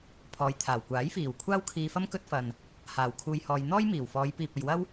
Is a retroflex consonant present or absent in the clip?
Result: absent